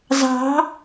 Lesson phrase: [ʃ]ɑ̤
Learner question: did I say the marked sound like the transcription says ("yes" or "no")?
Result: no